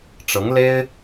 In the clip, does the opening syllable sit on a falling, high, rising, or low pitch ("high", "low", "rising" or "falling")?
rising